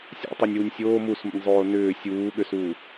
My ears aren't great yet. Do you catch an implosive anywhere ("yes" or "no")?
yes